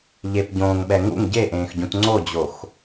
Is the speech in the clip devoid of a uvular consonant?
yes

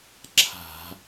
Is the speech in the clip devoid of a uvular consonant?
yes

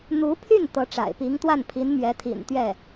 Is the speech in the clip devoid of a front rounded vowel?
no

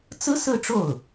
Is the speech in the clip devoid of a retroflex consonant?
no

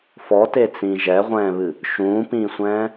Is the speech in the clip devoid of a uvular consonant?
no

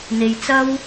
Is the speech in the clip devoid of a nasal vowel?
yes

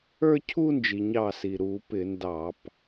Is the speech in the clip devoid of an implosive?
yes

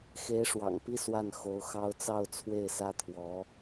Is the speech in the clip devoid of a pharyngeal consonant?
yes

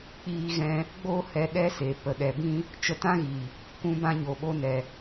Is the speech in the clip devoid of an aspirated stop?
yes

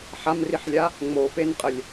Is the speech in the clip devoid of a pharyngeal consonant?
no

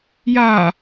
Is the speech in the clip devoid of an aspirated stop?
yes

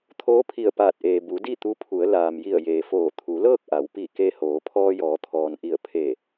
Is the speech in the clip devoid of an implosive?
yes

